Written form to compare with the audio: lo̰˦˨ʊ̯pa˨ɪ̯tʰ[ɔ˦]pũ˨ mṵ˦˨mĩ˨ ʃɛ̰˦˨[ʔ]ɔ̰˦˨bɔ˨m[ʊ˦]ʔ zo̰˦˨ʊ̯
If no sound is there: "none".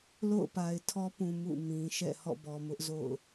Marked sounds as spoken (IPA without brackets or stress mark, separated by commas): ɔ˦, h, ʊ˦